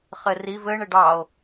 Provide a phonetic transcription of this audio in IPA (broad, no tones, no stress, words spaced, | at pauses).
χɘriv ɘɳ ɘɖɑo̯